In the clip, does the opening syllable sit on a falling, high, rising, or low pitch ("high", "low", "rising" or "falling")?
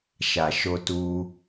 low